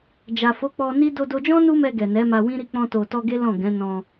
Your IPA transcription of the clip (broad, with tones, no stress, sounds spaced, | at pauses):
d͡ʒ a˨ f o˨˦ k͡p ɔ˧ n i˦ d o˧ d o˧ d͡ʒ ɔ̃˦ n u˦ m ɛ˧ ɡ ɛ˨ n ɛ˨˦ m a˧ w ĩ˦ ɾ i˦˨ k͡p ɔ̃˧ t o˨ t ɔ˧ ɡ e˦ l ɔ̃˦˨ ɡ ɛ̃˨˦ n ɔ̃˧